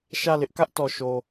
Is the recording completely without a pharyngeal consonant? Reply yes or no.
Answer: yes